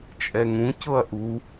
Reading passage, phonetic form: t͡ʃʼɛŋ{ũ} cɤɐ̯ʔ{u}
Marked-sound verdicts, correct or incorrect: correct, correct

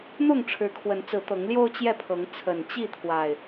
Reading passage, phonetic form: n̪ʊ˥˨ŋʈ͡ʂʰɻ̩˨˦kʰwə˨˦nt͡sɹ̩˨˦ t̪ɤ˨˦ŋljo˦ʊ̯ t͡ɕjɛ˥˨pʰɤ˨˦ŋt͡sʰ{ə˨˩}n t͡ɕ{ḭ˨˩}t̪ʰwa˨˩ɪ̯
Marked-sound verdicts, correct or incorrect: correct, incorrect

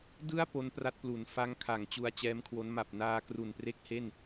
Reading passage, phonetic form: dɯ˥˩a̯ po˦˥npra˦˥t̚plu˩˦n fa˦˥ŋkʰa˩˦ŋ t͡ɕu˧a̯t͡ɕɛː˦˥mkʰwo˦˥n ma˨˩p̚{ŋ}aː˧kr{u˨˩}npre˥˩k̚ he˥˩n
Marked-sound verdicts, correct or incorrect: incorrect, correct

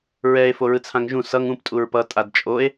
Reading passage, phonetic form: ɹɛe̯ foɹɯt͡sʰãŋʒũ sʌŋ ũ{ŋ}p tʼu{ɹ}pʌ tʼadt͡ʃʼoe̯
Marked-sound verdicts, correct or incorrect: incorrect, correct

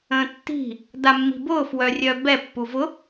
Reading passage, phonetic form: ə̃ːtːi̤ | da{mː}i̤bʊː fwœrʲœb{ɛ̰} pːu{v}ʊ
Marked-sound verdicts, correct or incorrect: correct, incorrect, correct

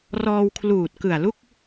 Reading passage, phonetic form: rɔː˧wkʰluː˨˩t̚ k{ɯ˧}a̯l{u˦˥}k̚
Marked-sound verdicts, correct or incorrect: incorrect, incorrect

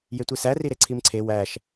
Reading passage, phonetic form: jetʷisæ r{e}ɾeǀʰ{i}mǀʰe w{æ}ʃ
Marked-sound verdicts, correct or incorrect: incorrect, correct, correct

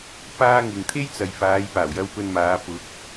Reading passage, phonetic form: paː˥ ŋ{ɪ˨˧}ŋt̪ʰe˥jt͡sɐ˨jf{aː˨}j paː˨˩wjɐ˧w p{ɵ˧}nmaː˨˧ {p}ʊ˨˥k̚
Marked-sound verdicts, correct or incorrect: incorrect, incorrect, correct, correct

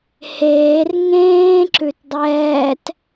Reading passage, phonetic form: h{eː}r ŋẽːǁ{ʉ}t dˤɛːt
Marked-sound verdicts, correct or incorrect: correct, correct

